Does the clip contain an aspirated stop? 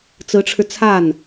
yes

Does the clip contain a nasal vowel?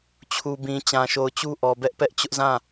yes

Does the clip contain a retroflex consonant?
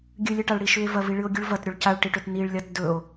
yes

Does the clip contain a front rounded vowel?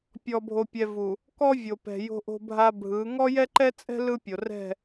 no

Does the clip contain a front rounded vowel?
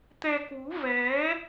no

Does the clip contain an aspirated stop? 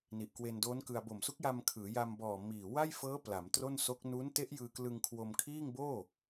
yes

